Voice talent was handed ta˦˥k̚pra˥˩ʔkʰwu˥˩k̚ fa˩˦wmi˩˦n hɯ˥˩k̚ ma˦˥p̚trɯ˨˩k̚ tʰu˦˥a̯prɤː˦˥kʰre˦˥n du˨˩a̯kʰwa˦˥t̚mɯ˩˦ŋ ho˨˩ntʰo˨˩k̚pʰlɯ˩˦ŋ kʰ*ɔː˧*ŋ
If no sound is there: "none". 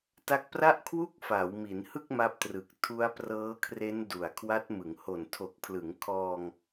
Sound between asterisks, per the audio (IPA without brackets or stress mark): ɔː˧